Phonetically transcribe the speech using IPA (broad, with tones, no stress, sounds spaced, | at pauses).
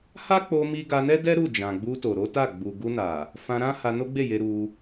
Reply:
h a˦ k͡p o˧ m i˦ ɡ a˧ n ɛ˦ d ɛ˦ ɾ u˦˨ d͡ʒ ã˨ ɡ͡b u˧ t o˨ ɾ o˨˦ t a˦˨ ɡ͡b u˨ ɡ u˧ n a˨ | f ã˧ ɾ ã˦ h a˧ n o˦ ɡ͡b e˦˨ j e˧ ɾ u˧